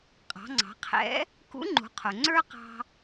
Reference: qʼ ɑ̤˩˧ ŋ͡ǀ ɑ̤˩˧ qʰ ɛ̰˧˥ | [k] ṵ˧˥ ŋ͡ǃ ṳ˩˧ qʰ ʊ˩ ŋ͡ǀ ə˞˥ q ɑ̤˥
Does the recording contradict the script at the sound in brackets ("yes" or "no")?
no